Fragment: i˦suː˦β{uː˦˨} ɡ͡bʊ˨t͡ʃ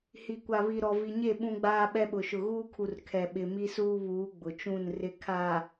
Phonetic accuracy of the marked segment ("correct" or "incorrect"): incorrect